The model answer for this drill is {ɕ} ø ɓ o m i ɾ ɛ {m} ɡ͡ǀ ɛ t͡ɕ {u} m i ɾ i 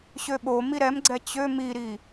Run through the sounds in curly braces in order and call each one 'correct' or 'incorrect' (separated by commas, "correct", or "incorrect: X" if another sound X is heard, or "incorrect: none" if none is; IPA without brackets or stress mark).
correct, correct, incorrect: ø